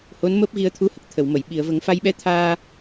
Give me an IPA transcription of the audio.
h o˧˥ n m əː˦˥ p̚ ɣ i˧ ə̯ t̪ʰ u˧˥ h ə˨˩ k̚ t̪ʰ ə˨˩˨ w m ə˨˩˨ j ɓ i˨˩˨ ə̯ v ə˨˩˦ ŋ f a˧ j ɓ ɛ˧˥ t̪ʰ aː˧

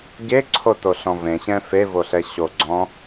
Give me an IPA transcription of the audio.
ɟ e ǀʰ o t o ɬ ɔ̃ v ẽ ɕ ɛ̃ f e v o ɬ ɛ ɕ o ɡ͡ǀ ɔ̃

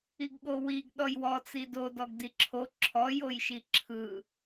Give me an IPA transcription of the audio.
i ɡ ɠ o w i ɡ ɗ ɔ j w ɔ t͡s i d o d ɔ ɡ d i ǁʰ o ǁʰ ɔ j o j ʃ i ǁʰ ɯ

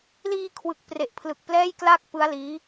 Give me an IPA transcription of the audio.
l iː˧ kʰ w ɯ˨˩ k̚ p r e˨˩ ʔ pʰ l ɯ˨˩ k̚ p l ɛː˥˩ j k l a˥˩ k̚ p ɯ˦˥ a̯ l iː˦˥

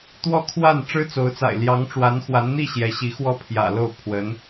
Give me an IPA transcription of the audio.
t̪ w ɔ˥˧ kʰ w a˥˩ n ʈ͡ʂ ɻ̩˥ t͡s o˧˥ ʊ̯ t͡s a̰˨˩ ɪ̯ l j ɑ˧˥ ŋ ʈ͡ʂ w a˧˥ n x w a˧˥ n n̪ i˥˩ ɕ j ɛ˧˥ ɕ i˧˥ x w ɔ˥˩ pʰ j ä̰˨˩ l o˥˩ ʊ̯ pʰ w ə˧˥ n

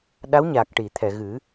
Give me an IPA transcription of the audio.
ɗ a˧˥ w ɲ a˨˩ k̚ ʈ i˨˩˨ t̪ʰ ɛ˨˩˨ ɣ ɨ˨˩˦

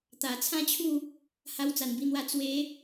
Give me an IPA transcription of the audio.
t̪ a˨˩ t͡sʰ ã˥˧ t͡ɕʰ u˥˧ | h a˧ w t͡s a˨˩ n b i˧ n̪ w a˧ t͡s w e˨˦

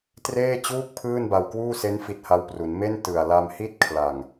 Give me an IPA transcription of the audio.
t r eː˥˩ t͡ɕ uː˥˩ k̚ pʰ ɯː˥˩ n b a˧ w k w uː˥˩ s e˦˥ n f i˦˥ t̚ h a˦˥ w p r u˩˦ n m e˥˩ n t ɯ˨˩ a̯ l a˧ m h i˥˩ t̚ kʰ l a˨˩ ŋ

